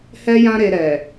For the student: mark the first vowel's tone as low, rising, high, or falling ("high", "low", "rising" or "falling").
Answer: high